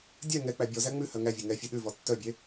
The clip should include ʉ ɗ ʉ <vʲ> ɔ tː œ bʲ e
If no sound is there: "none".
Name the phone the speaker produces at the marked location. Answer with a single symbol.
v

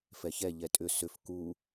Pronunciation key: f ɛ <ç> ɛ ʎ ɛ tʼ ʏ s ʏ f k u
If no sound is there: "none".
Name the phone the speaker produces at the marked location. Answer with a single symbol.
ç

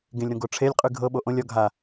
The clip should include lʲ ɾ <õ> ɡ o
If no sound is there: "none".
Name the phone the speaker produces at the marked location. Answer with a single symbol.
õ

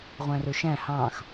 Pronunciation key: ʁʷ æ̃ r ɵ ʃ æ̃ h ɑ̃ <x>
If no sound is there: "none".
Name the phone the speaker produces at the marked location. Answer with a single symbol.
x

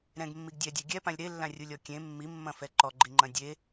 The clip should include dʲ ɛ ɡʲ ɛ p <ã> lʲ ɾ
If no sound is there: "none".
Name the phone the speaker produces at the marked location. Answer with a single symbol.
ã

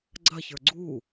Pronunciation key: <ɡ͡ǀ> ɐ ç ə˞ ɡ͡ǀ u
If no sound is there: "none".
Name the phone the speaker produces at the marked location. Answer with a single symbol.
ɡ͡ǀ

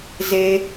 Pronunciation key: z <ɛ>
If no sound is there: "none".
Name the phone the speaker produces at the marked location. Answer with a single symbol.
e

